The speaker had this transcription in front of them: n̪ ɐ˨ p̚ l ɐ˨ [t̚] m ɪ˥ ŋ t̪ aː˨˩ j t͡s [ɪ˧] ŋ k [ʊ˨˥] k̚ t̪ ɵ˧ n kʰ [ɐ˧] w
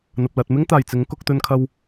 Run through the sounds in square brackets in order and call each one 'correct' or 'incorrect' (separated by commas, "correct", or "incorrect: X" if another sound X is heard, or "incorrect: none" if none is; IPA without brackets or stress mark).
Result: correct, incorrect: ɪ˨˥, incorrect: ʊ˧, correct